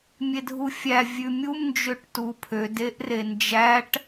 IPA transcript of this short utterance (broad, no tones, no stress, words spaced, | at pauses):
mʲedʱufʲæ vʲʉmʲum nd͡ʒøʈtupʰød eʔrend͡ʒæʈ